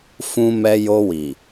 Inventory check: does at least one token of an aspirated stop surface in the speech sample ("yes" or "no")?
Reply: no